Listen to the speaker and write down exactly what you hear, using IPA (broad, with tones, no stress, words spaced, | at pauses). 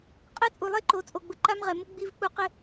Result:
qʼɛ˦t͡sʼu˨lˠe˦ ǃo˨t͡sʼo˨ɡ͡bʊ˨ ǃa˦mʁɛ˨mʊ˦ ɡ͡bi˦vk͡pu˦ qɪ˦